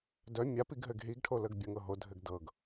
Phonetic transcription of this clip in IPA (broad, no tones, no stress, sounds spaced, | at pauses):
d œ mʲ a p i ɡ ɦ ɘ ɡ ɦ i ɡ ʈʰ o l ə ɡ bʲ ə ŋ ɤ ɦ o dʱ ɘ ɡ d ɤ ɡ